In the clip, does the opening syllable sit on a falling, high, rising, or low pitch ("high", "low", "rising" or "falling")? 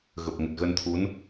low